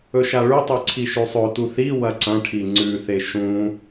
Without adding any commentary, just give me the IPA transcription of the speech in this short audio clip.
ɵʃaɭʉtˤʉ ǀʰiʃʉsˤɵtu θi wɐǀɐ̃ʈʰi ŋ͡ǀʉθe ʃũ

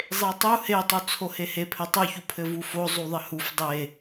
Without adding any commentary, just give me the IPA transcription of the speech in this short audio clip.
zˤetˤu hetˤu t͡sʰohehe pʰɘtˤuçu pʰɘvufo zˤuðˤɘhuf dˤe

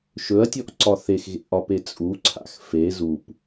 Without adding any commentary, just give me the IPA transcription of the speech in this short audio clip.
ʃɵɐ̯tʲɔʔǀɒ θexɣḛʔɒpe t͡sʼuǀʰa̰x fe zup

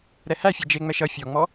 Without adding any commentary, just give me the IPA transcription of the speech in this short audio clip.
ɾɛhæfʲɛ d͡ʒeŋ͡mɛʃ ʌ fʲɔŋ͡mɔ

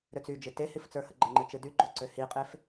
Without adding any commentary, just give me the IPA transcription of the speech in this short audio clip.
ɾøt͡syd͡ʒɨ tehif t͡sə˞həɡ͡ǃəŋ͡ǃɨ t͡ʃɨdyɡ͡ǃo ǀøhiqʼef

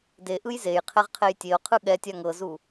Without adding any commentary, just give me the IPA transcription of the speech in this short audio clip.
deʔɯj zej qʰɛʁqʰejtʲeo̯qʰɯ ɠɛ tʲaŋɤzu

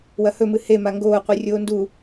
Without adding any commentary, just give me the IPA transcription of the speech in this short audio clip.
wɐhɵmɨ hema ŋɡoːqʷi rʲoːndu

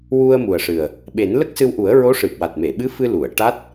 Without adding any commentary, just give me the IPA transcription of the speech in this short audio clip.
wu˧ə̯mu˨˩ə̯ʂɨ˨˩ə̯ | ɓe˨˩˦nlə˦˥k̚sɨ˧wʔu˨˩˦ə̯ ɹo˧˥ʂɨ˨˩p̚wa˨˩t̚me˨˩˨ ɓɨ˧˥fɨ˧ lu˨˩˨ə̯ ʈa˦˥t̚

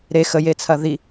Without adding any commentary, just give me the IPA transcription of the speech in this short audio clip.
ɾe xəjet͡sʰɐ ði

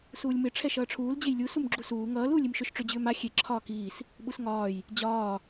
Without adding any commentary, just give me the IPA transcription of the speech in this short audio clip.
suːlʲmɪ ʈ͡ʂʰɛʃʌːʈ͡ʂʰuːl d͡ʑejlʲu sumɡ͡ǁusuː ŋʌːl uːlʲimʃʏʃ ʈ͡ʂʏ d͡ʑʏːma xʲe ǁʰɒːkiːs | ɓusŋɒːj | d͡ʑɒː

